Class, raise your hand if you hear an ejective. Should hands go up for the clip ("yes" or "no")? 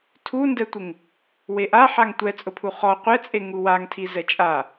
yes